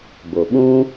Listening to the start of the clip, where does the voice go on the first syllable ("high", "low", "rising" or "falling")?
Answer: low